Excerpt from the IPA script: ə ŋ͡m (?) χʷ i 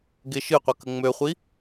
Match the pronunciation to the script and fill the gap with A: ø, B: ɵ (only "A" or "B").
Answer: A